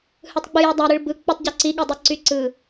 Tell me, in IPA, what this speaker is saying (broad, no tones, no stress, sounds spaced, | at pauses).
h ɯ tˤ ɡ͡b ɯ j ø dˤ æ ɾ ɯ ɭ b ɯ k͡p ɯ tˤ ɟ o ǀ i ɠ e dˤ i ǀ y ǀ ɯ